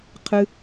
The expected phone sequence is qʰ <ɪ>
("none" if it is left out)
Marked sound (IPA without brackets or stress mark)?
ɨ